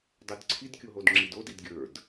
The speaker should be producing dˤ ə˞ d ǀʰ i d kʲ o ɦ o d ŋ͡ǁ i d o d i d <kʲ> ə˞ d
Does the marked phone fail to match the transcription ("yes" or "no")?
yes